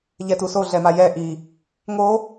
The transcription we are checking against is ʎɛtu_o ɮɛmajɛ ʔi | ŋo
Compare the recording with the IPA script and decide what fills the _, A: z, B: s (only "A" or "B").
B